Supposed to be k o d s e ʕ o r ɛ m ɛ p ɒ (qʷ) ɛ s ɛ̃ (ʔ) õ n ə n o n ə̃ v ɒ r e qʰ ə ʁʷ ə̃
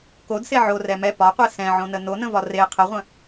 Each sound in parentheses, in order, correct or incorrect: correct, incorrect

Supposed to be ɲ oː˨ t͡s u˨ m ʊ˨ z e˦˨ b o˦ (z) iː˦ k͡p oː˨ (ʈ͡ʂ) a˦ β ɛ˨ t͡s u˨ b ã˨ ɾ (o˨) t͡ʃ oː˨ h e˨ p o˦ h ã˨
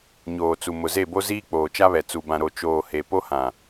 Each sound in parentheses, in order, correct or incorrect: correct, incorrect, correct

